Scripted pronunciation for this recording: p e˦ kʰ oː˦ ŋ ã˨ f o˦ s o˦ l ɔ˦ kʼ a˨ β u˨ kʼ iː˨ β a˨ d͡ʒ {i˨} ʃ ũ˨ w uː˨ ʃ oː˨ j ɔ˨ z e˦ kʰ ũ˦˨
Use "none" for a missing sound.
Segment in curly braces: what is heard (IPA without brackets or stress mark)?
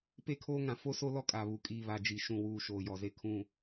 i˨